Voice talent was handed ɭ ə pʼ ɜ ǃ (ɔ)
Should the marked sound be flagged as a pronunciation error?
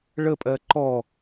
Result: no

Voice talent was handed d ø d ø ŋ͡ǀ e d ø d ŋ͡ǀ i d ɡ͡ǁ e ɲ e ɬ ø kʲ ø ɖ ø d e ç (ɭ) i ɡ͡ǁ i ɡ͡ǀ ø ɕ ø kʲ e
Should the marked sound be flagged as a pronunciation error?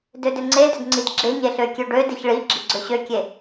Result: no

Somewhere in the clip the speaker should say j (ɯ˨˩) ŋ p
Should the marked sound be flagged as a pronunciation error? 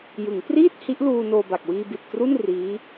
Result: yes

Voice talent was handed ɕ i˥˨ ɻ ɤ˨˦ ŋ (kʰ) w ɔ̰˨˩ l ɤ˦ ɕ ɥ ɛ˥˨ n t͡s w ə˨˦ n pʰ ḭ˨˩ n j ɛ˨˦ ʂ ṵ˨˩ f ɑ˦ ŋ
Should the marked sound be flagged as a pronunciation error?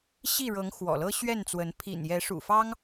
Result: yes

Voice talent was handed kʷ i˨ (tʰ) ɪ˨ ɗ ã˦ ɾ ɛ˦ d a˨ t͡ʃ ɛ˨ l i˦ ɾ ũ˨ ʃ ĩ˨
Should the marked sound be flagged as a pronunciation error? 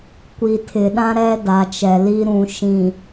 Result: no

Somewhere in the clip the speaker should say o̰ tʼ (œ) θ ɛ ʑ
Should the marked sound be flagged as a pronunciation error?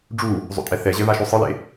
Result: yes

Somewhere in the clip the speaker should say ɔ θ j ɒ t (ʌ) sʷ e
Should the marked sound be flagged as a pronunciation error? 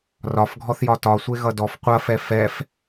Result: yes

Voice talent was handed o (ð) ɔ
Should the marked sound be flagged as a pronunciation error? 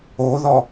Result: no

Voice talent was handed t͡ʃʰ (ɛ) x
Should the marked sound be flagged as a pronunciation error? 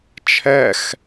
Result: no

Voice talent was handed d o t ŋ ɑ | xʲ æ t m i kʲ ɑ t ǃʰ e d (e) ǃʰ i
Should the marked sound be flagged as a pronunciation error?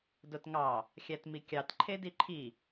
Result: yes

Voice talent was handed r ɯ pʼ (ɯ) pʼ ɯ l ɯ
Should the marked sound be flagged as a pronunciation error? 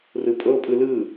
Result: yes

